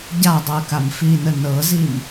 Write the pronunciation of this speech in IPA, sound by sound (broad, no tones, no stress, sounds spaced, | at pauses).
ɟ a dˤ ɤ ə̯ k a m f i n ə n ɤ z i m